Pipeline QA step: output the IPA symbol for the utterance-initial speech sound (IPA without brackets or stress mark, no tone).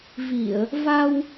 v